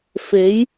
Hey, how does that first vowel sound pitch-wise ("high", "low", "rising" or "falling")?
rising